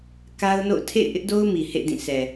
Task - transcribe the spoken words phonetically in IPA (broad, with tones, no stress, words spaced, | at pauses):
ka˦ʊ̯no̰˦˨ʊ̯ tʰḛ˦˨ɪ̯ʔɪ˦ʔdo˦ʊ̯ mi˨hḛ˦˨ dĩ˦˨sʰɛ˨